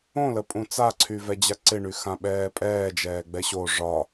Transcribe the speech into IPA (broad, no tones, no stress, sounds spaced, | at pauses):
õ l ə pʼ ũ t͡s a ǀʰ y v ɛ d͡ʑ a ǀ ɪ ɳ y x ã ɓ ɛː pʼ ɛː d͡ʒ ɛː ɡ͡b ɛ ɕ o ʐ ɒ